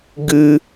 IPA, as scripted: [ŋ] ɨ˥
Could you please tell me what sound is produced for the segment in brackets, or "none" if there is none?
ɡ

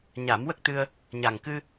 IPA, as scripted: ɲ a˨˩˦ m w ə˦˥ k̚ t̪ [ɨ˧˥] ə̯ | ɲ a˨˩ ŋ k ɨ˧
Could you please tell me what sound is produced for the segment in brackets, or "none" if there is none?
ɨ˧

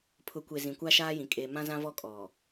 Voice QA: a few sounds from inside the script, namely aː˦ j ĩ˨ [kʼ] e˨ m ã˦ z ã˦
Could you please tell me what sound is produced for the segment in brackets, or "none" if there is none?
kʼ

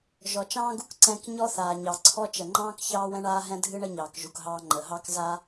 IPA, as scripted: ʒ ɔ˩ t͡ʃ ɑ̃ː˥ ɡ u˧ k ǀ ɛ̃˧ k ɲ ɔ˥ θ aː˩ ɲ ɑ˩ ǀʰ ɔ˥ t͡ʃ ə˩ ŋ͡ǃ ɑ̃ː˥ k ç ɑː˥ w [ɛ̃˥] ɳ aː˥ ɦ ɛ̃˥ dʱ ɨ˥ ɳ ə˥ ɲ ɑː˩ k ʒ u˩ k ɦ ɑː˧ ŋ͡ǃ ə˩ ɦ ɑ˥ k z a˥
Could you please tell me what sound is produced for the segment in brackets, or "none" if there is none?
ɛ̃˥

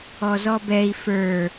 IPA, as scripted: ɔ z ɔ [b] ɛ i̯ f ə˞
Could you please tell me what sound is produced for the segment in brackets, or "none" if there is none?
b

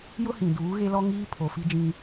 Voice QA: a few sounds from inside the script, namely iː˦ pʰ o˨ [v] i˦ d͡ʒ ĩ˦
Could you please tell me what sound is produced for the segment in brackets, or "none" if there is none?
f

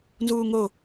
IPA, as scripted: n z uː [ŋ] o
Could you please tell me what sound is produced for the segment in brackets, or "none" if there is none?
ŋ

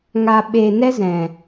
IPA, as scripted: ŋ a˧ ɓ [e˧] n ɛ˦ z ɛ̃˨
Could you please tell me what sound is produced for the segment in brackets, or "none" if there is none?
e˧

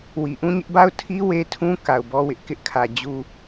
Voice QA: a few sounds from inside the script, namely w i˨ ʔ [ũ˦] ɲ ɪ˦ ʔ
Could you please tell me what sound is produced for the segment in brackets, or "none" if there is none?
ũ˦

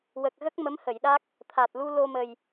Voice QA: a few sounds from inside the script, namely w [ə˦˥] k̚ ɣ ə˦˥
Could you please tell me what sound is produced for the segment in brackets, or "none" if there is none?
ə˨˩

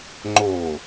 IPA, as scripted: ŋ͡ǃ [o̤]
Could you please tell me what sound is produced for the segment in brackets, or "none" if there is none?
o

